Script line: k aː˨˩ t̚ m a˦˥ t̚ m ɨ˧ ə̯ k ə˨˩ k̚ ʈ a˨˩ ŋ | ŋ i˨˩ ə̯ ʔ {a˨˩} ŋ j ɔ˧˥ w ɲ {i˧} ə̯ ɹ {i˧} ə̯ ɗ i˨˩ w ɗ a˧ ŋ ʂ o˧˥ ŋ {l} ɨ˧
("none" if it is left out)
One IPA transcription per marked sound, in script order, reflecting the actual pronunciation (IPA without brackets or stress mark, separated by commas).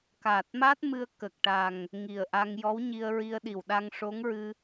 a˧, i˧, i˧, ɹ